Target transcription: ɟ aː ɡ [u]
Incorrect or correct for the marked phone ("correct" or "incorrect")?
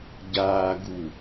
correct